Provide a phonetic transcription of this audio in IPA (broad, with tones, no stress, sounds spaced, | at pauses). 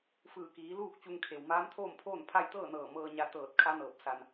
f ɯː˧˩ k iː˩˧ l uː˥˨ k̚ t͡ɕ u˧ ŋ kʰ e˩ w m aː˧˥ m t̪ʰ oː˥˨ m pʰ oː˥˨ n pʰ a˥˨ j t̪ ɤː˥˨ n ɤː˧˩ m ɤː˧ ɲ a˧ t̪ ɤː˧˩ t̚ kʰ a˧˥ n ɤː˧˩ p̚ s a˧ n